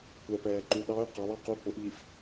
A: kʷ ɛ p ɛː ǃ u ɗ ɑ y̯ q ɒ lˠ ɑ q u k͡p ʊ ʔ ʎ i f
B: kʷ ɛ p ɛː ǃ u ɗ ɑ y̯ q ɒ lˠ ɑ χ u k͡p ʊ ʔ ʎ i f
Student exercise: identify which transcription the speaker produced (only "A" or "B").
A